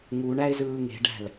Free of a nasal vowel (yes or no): yes